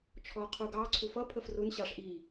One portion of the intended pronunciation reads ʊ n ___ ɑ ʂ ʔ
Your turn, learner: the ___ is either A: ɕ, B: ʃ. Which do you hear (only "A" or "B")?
A